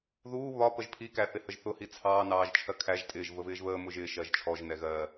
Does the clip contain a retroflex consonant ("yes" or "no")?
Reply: no